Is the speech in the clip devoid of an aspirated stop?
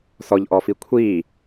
no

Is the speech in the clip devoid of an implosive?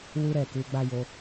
yes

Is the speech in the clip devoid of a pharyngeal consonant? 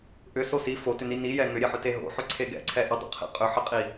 no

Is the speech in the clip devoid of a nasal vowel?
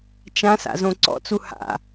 no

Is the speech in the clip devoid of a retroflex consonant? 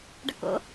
no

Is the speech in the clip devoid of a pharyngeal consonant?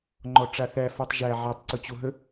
no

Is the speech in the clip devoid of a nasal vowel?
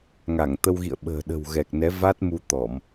yes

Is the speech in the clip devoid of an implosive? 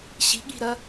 no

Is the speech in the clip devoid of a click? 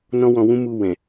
yes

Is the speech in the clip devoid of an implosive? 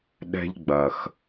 no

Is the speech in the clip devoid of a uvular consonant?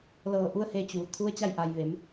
yes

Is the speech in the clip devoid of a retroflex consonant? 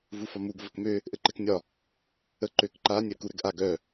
yes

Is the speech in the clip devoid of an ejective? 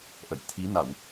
yes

